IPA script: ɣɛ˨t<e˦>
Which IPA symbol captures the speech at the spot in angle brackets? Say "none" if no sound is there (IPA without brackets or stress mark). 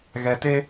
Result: e˦